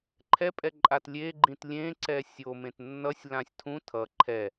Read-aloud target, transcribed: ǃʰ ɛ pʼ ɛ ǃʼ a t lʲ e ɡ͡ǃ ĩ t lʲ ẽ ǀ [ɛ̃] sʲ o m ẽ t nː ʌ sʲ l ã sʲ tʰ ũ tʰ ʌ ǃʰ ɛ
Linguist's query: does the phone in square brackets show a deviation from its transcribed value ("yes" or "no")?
yes